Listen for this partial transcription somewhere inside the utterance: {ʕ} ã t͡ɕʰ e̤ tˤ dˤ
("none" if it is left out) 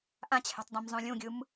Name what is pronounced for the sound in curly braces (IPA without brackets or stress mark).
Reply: ʔ